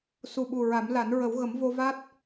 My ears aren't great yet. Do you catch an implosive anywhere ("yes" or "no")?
yes